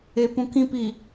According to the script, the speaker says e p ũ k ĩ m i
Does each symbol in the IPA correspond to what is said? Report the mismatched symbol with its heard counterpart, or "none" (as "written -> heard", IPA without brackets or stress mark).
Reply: m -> p